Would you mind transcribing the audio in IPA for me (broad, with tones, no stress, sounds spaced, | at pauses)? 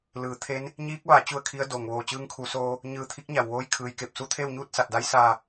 l ɯː˩˧ t̪ʰ e˧˥ n | ɲ iː˧˥ k̚ ʋ a˩˧ t͡ɕ u˥˨ ə̯ kʰ i˧˥ ə̯ d oː˩ ŋ ʋ oː˧˩ t͡ɕ ɯː˧˥ ŋ kʰ uː˩˧ s oː˧ | ɲ ɯː˧˩ t̪ʰ i˧˥ k̚ ɲ a˩ w ʋ oː˧ j kʰ ɯː˩ j k e˧˩ p̚ s u˧ t̪ʰ eː˥˨ w ɲ uː˥˨ t̚ s a˧˩ t̚ d a˧˥ j s aː˧˩